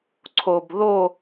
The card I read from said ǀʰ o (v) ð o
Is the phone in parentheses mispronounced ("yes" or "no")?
yes